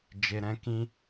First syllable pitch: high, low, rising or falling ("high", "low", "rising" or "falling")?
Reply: low